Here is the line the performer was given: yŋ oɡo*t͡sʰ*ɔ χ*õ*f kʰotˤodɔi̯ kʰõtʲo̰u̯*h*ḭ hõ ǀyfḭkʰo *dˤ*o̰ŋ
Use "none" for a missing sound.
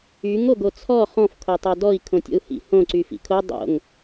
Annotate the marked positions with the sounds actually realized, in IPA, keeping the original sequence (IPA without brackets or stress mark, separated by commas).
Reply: t͡sʰ, ɔ̃, h, dˤ